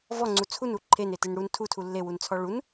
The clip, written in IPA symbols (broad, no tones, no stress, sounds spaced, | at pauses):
v ɔ ŋ͡ǀ u t͡sʰ u n u ǃʰ e n e t e n ɽ u n tʰ u tʰ u lː e w u n t͡sʰ ɔ ɭ u n